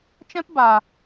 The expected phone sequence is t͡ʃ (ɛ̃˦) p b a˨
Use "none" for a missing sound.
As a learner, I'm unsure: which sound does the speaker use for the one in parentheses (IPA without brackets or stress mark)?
ɛ̃˦